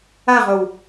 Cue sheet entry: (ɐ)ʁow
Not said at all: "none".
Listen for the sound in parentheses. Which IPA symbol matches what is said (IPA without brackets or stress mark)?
a